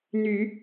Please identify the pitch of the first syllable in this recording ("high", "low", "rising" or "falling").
low